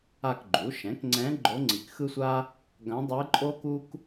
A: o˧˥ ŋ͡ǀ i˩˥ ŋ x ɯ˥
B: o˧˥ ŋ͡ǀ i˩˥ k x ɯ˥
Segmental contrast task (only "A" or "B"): B